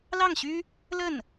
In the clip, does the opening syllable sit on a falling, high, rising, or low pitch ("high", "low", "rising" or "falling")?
falling